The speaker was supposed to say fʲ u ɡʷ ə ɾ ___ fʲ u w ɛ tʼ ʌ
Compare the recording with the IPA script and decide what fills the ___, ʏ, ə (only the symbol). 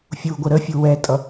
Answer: ə